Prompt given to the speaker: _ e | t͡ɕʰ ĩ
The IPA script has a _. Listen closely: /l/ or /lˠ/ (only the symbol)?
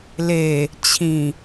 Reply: l